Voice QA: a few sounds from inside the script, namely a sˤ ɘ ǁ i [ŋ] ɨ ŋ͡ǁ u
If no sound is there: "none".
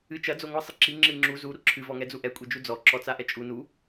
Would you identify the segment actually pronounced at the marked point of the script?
ŋ͡ǁ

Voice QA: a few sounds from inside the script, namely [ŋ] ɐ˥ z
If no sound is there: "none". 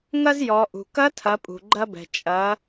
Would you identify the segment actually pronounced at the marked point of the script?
ŋ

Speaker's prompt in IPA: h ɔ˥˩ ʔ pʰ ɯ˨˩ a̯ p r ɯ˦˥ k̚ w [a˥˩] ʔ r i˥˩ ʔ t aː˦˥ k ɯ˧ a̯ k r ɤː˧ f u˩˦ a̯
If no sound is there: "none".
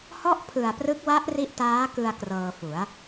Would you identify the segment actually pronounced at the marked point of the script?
a˦˥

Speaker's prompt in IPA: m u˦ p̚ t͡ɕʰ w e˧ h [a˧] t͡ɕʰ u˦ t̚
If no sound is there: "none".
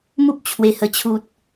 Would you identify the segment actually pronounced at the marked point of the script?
ə˧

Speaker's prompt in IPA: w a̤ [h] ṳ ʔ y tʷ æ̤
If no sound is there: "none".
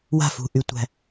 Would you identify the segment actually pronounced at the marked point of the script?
f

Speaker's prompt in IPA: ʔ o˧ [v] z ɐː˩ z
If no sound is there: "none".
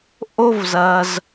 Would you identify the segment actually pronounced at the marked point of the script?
v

